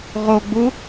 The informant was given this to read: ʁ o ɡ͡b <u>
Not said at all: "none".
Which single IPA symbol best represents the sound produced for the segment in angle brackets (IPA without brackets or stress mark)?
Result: u